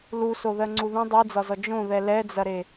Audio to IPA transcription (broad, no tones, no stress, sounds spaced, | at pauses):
l u s o ð ɜ ŋ͡ǀ u ð ũ dˤ i d͡z ɒ z ɔ d͡ʒ õ ð ɛ l ɛ d͡z ɐ ɾ e